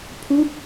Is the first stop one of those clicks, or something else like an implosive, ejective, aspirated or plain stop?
aspirated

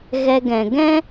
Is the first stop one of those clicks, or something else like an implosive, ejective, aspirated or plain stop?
plain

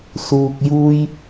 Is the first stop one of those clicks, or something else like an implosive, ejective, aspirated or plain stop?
plain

